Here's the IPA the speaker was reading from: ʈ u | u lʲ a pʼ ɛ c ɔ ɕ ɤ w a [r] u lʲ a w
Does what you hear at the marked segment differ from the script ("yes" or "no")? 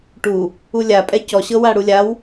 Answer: yes